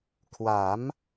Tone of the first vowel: rising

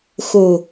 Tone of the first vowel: low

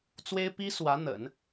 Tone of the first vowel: high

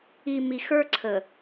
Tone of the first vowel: low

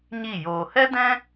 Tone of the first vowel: falling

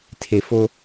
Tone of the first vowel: low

